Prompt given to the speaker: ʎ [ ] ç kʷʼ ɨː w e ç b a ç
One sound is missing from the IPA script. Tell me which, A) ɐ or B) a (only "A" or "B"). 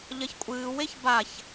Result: A